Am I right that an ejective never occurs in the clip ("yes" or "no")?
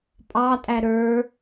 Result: no